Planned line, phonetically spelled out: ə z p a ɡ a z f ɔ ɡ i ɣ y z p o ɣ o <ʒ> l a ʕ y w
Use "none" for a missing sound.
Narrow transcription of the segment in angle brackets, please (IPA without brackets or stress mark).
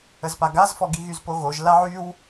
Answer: ʒ